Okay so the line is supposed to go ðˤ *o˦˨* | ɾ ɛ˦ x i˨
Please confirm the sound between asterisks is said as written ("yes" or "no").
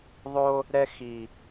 no